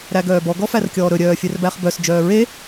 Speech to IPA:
ɾæɡœːbɔ ɡɔfærkʲɔːɾɵ ɾʲœːfʲɛrbæχbœs d͡ʒœːɹe

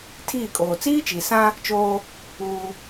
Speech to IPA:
tʰiː˦˨kʼoː˨ t͡siː˦t͡ʃi˨sã˦ | t͡ʃoː˦ | uː˦

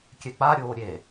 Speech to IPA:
kʲɛk͡paɾʲoː ɾʲe

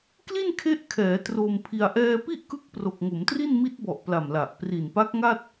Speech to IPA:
kli˥˩nkʰe˦˥ʔkʰɛː˩˦ tro˧mpʰi˧a̯ ʔɛː˧pi˥˩ʔkɯ˦˥k̚ pro˨˩k̚ŋo˩˦mtri˥˩n mi˦˥t̚bɔ˨˩ʔ pla˨˩mla˨˩ʔ pri˨˩npa˦˥k̚ŋa˥˩t̚

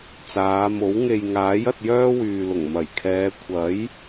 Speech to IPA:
t͡saː˨˧mo˨˥w ŋe˨jŋaː˨˥j ɐ˧t̚jœː˥wyː˨lʊ˨˩ŋ mɐ˨˩jkʰɛː˨˧ kʷʰɐ˨˥j

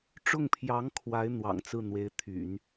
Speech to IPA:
ʈ͡ʂʊ˥˩ŋpʰjɑ˧˥ŋ kʰwa˧˥ɪ̯ n̪wɑ̰˨˩ŋt͡sɹ̩˥˩ n̪we˧˥ɪ̯t̪ʰy̰˨˩˦n

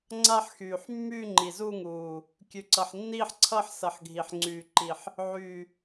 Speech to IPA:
ŋ͡ǀa˥˧ħ xyː˨˩ħ mːyː˥˧ŋ͡ǃi˨˩zu˥˧ŋuː˨˩ | kʲʉ˨˩ǀʌ˨˩ħ nːiː˥˧ħǀʰʌː˥˧ħsʌ˨˩ħ ɡʱi˨˩ħ ŋ͡ǀyː˨˩ǃi˨˩ħ | ʕyː˨˩

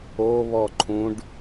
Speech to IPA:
o βɔǃʰũɖ

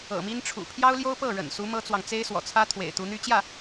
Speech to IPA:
ɤ̰˨˩mi˥nʈ͡ʂʰṵ˨˩ pʰjɑ˥ʊ̯ljo˥ʊ̯ pɤ˥˩ ɻə̰˨˩nsu˧˥ mɤ˥t͡swɑ˨ŋ t͡se˥ɪ̯swɔ̰˨˩t͡sʰä˥ t̪ʰwḛ˨˩ɪ̯t̪u˧˥n̪y˥ t͡ɕjä˥˩

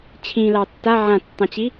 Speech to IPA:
t͡ɕʰĩlɑ tːa ʕãtːɑ̃t͡ɕi

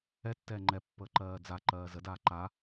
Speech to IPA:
ɛtːɛː ŋ͡ǃɛpːəː ǃɜːd͡zaǃɜː zədaː ǃa

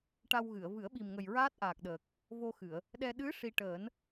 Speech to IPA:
ʈa˧wɣɨ˨˩˨ə̯ vɨ˨˩˦ə̯ɓi˨˩mŋə˨˩j ɹaː˦˥t̚ʔaː˨˩k̚ɗəː˨˩k̚ | vo˧xɨ˨˩˨ə̯ | ɗɛ˧ ɗɨ˧˥ ʂi˧ ʈəː˨˩˦n

